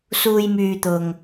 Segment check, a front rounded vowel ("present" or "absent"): present